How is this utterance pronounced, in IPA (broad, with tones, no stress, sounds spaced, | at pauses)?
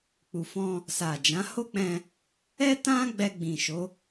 k͡p u˨ f ɔ̃˧ | s a˨ d͡ʒ ã˨˦ h o˦ k͡p ɛ̃˧ | ɛ˦ t ã˦ ɡ͡b ɛ˧ ɡ͡b ĩ˨ ʃ o˨˦